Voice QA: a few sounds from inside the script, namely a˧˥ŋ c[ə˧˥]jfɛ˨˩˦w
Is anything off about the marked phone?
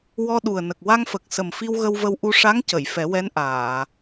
yes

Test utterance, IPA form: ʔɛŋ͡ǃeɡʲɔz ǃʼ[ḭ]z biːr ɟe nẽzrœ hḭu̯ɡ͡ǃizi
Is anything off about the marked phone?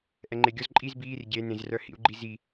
yes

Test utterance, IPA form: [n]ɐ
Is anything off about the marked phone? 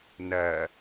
no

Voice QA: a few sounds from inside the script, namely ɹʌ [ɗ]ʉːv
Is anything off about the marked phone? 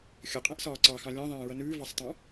yes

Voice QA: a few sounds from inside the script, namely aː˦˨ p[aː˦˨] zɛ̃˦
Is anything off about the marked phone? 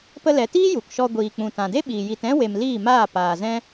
yes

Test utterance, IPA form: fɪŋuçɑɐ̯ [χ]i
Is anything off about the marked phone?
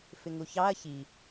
yes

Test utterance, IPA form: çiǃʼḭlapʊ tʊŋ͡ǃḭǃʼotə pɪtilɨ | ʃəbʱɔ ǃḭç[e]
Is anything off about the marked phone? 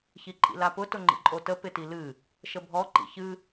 yes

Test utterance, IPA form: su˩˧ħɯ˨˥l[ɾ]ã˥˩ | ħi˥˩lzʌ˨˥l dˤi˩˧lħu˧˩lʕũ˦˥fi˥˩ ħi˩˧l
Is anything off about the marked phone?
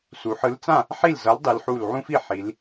yes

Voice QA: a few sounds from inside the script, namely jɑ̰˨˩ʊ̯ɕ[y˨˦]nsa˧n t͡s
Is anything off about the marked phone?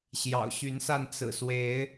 no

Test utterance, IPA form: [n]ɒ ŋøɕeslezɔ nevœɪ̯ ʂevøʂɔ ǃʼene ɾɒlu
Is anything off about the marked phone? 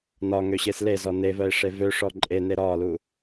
no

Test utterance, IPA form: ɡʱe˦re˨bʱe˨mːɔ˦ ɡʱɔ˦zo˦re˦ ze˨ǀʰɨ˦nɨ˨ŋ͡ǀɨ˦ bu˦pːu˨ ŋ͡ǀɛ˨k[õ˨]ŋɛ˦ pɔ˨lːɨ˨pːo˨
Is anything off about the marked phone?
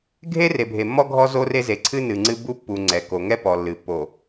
yes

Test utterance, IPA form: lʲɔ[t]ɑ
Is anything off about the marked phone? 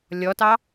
no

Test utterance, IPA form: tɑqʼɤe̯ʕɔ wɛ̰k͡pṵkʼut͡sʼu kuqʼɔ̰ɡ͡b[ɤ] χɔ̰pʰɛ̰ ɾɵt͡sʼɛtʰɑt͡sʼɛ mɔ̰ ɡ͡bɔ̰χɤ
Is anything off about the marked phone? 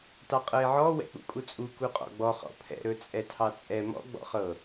yes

